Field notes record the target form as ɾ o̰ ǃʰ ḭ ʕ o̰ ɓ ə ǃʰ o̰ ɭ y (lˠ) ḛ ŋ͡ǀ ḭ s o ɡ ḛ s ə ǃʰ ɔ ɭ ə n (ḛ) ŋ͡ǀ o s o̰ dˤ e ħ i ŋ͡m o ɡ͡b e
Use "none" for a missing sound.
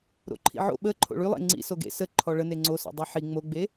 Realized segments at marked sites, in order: lˠ, e

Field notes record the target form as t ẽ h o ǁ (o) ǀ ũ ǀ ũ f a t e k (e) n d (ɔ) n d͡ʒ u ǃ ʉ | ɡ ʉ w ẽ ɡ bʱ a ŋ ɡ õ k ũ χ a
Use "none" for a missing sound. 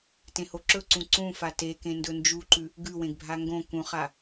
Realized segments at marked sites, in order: ɵ, ẽ, ɵ

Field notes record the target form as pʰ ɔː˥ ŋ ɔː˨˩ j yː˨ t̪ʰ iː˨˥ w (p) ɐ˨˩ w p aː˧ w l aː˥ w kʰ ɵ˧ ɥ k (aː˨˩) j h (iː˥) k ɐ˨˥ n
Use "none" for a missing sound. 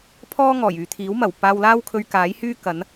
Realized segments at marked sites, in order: m, aː˨˥, yː˥

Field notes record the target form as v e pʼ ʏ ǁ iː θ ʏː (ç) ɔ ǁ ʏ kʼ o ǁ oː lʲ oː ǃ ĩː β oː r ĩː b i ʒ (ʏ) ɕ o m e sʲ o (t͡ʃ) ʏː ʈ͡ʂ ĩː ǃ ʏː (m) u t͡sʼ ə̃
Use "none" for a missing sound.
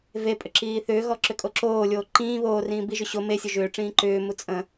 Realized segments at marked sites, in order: ɣ, ʏ, ʒ, m

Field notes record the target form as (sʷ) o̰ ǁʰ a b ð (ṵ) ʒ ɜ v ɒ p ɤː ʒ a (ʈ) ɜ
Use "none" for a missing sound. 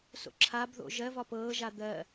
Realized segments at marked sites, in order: s, o̰, d̪

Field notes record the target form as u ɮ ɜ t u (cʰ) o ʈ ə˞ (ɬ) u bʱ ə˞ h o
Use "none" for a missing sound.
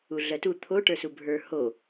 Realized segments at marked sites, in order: t̪ʰ, s

